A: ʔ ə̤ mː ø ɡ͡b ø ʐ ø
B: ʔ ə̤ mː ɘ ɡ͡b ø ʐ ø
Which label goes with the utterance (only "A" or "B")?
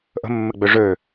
B